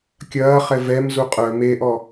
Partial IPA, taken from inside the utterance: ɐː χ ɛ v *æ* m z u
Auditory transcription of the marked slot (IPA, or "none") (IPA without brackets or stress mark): ɛ